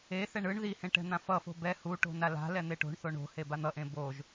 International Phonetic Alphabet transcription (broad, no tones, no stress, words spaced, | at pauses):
eθɛɳ ɯɳ ðihẽ ʈɛ̤n̪ãfʌfo̤ bɛ hu ʈo̤nala̤lɛ n̪eʈo̤ɳθo ɳo̤ heban̪ʌʔẽ boʒ